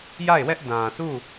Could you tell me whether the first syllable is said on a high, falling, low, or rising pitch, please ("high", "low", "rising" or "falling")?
falling